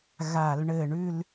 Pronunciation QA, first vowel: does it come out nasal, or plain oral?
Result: oral